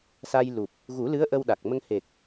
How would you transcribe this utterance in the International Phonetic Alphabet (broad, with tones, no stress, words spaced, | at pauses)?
sa˧jlu˨˩p̚ | ɣu˨˩˦lɨ˧˥ə̯ ʔə˧wɗa˨˩k̚mə˧ŋ he˨˩k̚